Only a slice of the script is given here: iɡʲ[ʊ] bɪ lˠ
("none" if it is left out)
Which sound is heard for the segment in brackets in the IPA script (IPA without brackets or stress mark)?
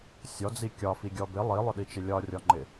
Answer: ɔ